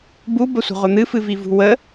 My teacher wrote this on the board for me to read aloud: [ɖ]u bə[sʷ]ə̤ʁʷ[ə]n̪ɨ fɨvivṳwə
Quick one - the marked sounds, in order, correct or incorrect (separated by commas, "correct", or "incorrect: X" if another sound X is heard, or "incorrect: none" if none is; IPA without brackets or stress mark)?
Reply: incorrect: b, correct, correct